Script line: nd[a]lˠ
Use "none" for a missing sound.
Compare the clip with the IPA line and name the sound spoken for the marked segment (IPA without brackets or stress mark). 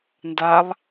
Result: a